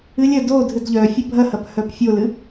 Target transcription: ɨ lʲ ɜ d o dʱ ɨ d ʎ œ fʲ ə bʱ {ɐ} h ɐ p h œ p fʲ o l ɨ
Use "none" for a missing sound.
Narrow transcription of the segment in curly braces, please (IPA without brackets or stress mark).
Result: ɐ